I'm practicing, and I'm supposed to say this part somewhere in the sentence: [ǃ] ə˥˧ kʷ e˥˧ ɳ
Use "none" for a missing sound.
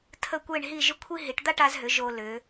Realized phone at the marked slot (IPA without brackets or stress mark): tʰ